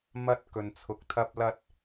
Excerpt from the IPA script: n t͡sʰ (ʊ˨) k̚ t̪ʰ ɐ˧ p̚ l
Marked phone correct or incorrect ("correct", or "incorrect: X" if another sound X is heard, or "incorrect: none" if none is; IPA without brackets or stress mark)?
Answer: correct